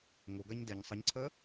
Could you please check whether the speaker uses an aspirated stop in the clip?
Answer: yes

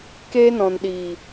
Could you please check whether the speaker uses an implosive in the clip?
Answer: yes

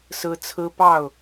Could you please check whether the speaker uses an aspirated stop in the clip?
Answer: yes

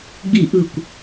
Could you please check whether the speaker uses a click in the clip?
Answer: no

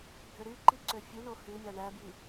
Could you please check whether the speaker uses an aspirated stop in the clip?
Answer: no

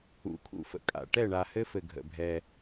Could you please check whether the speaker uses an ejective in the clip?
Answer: yes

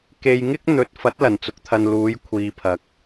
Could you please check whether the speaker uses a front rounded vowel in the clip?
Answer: no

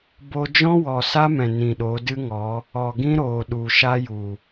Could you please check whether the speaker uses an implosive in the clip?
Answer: yes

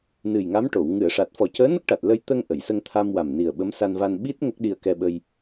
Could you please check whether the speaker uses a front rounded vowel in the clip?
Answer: no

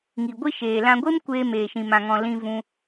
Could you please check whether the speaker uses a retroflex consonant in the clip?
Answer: no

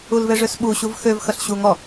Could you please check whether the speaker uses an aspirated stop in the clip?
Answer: no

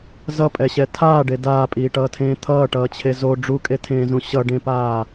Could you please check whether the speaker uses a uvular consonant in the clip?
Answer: no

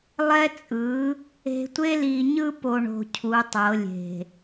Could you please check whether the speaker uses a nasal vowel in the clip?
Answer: no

